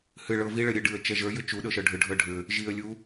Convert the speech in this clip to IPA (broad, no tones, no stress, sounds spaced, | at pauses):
h ɨ ɭ ɤ v i ɭ ə ɾʲ ɨ ɖ ɨ ə̯ t͡ʃ ɛ ʒ ə˞ j ʏ t͡ʃ u ɗ ɤ ʃ ɤ ɖʱ ʏ ɖʱ ɤ ɖʱ ʏ | ʒ i ə̯ lʲ u